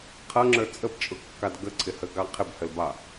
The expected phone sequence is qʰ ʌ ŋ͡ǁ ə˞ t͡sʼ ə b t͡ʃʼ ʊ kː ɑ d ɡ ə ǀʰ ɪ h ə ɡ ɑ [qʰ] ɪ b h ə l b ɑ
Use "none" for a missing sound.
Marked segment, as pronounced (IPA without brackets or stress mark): qʰ